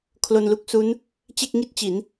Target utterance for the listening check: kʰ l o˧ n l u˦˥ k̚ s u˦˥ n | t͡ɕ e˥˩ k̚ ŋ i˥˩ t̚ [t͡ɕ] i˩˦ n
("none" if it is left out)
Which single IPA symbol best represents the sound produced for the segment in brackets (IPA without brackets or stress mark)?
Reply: t͡ɕ